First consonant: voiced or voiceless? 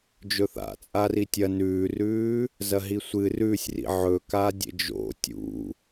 voiced